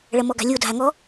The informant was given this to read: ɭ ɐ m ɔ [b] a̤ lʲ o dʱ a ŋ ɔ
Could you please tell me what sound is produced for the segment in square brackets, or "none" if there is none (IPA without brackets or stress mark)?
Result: ɡ